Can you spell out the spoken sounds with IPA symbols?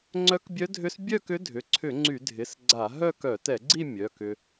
ŋ͡ǀ œ˧˥ k bʲ œ˧˥ dʱ ʏ˧˥ s bʲ œ˥˧ k ʏ˧˥ dʱ ʏ˩˧˩ ǀʰ ʏ˧˩˧ ŋ͡ǀ y˧˩˧ dʱ ɪ˩˧˩ s ɡ͡ǀ a˧˩˧ ɦ œ˥˧ k œ˧˩˧ t ɛ˧˩˧ ɡ͡ǀ i˥˧ mʲ œ˩˧˩ k ʏ˧

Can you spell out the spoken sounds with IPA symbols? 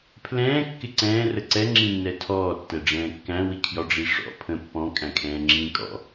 pʰ l ɛ̃ː kː ɪ ǀ ɛ̃ː r ə ǀ ɛ ŋ͡ǁ ĩ nː ɛ tʰ ɔː tː ɛ ɖ͡ʐ ɛ̃ː kː æ̃ w i kʰ j ɒ ɖ͡ʐ i ʂ ɔ̰ pʰ ə̃ pː ɔ̃ kʼ æ̃ kʰ ɛ̃ː ŋ͡ǁ ĩː kʼ ɔ̰

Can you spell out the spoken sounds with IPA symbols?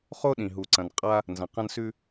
χ o˥ ɗ ĩ˩ ɦ u˩ ǀ ɐ̃˩ n qʼ a˧ | n z ɐ̃˩ q ɐ̃˧ n s ʉ˧

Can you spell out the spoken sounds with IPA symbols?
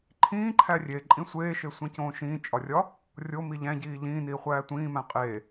ǃʰ ĩː ǃʰ æ rʲ e ǃʼ ĩ sʷ eː ʃ e sʷ ẽ c õː ʃ ĩː t͡ʃʼ ɒ rʲ ɒ | rʲ o m i ʎ æ̃ ɟ iː ʎ ĩː n iː χʷ æː tʷ ĩː m æ̃ qʼ eː

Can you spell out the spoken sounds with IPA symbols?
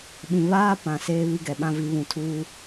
ɓ ĩ˨ β aː˦ p ã˨ s eː˦ β i˦ ɡ ɛ˨ ɓ ã˦ v i˨˦ β ũ˨ tʰ uː˦

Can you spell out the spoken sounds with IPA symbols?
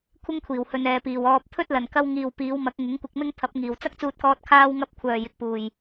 kʷʰ ɪ˥ ŋ kʷʰ iː˨˩ w h ɵ˨ n ɛː˨ p iː˨˩ w ɔː˧ p̚ t̪ʰ ɵ˥ t̚ l ɐ˨˩ n k ɐ˧ w ŋ iː˨ w p iː˨˧ w m ɐ˨˥ k̚ ŋ ɪ˨˥ ŋ kʷ ɪ˧ k̚ m ɪ˥ ŋ t̪ʰ ɐ˨˥ p̚ ŋ iː˨˩ w t͡s ɐ˥ k̚ t͡s uː˧ t̚ k ɔː˧ t̚ kʰ aː˥ w ŋ ɐ˥ p̚ kʷʰ œː˨˩ j ɪ˨ k̚ p uː˨˩ j

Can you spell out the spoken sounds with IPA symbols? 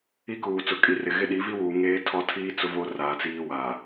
i˦ k uː˨ t͡s ʊ˨ kʼ i˨ r ɪ˨ ɣ ɪ˦ ɗ i˨˦ v i˦ w uː˨ ŋ eː˦ tʰ ɔ˦ tʰ iː˦ t͡s ʊ˦ v o˦ r aː˨ t͡s iː˦ w aː˨

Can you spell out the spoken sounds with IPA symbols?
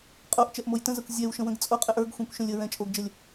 qʼ o ʔ t͡ʃ ɛ ʔ m o j t ə̃ z a kʷ zʲ ɛ w ʃ ə̃ w ə̃ ɡ t͡sʼ o qʼ ɛ ʔ ə˞ ɡ xʷ ɛ̃ kʷ ʃ ə̃ lʲ ə ɹ ɛ̃ t͡ʃʼ o ɡ d͡ʒ ə lʲ

